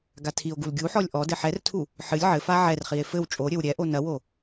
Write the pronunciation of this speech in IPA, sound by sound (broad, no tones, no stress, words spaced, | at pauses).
ɡatʰio̯ɡul ɡʲuħɔlʲ ʔɔ dɘħɛrtʰu | ħɨlʲ ʕɘ faʕɛrχie̯ fɘw t͡ʃʼoɾʲɘw ɾʲɛʔo nɐwo